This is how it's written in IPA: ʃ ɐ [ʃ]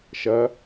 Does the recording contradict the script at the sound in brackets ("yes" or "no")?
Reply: yes